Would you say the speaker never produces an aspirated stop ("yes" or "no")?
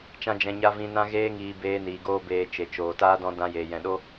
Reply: yes